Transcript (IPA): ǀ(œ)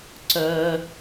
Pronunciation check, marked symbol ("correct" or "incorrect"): correct